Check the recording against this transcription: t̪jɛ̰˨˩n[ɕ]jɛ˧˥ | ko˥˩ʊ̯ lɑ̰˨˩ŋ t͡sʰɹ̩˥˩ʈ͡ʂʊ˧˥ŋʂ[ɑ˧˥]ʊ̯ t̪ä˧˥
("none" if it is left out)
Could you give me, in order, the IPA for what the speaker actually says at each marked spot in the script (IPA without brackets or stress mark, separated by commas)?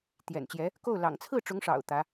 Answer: t͡ɕ, ɑ̰˨˩